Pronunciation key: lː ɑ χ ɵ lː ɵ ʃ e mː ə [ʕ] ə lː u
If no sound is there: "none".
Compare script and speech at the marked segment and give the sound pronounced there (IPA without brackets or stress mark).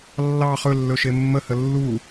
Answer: h